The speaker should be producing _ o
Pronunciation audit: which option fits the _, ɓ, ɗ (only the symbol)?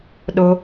ɗ